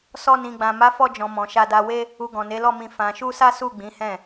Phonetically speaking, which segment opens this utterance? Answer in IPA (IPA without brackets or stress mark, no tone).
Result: s